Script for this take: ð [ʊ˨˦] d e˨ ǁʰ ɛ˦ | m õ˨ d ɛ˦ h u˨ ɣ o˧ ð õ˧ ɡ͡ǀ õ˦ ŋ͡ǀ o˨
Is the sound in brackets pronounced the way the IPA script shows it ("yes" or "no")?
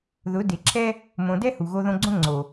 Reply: yes